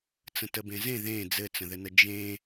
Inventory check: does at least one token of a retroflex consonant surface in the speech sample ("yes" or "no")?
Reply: no